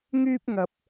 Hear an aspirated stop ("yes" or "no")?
no